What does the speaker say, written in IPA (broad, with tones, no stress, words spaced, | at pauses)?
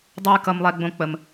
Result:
dˤu˧j kʌ˧mlˠɛ˧ɡ͡bõ˧ k͡pə˧m